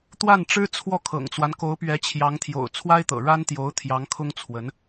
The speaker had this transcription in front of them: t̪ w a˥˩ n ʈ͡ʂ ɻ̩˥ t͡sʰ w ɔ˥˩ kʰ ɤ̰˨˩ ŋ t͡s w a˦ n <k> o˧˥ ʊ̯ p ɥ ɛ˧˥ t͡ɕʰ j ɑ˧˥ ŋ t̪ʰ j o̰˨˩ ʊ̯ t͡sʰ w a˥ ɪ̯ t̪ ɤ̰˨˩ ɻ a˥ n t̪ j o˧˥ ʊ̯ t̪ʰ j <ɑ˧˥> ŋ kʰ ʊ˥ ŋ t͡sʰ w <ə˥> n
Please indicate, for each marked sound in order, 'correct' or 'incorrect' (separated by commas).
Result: correct, correct, incorrect